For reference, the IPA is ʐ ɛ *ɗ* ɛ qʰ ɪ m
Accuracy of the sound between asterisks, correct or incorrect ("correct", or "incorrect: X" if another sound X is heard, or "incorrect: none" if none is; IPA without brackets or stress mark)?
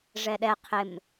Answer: correct